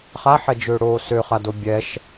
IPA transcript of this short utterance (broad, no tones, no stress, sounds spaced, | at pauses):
χ a ħ ɛ d͡ʒ ø ɽ oː s ø χ a d o bʲ ɛ ʃ